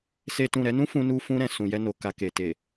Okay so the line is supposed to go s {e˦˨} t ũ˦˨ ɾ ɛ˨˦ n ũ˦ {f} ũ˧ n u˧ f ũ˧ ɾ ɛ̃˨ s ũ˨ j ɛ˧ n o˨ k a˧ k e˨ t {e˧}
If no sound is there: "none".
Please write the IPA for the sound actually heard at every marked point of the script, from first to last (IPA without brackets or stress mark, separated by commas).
e˦, f, e˨